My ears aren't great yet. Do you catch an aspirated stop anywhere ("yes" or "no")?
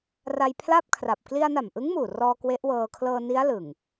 yes